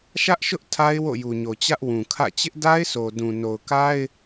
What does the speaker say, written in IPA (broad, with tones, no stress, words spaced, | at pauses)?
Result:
ʃä˦ʔʃʊ˦ʔ tʰa˦ɪ̯ wo̰˦˨ju˨ɲo˨t͡ɕä˦ʔ wũ˨kʰä̰˦˨ t͡ɕɪ˦ʔda˦ɪ̯sʰo˨ dũ˨no˨ʊ̯ka˦ɪ̯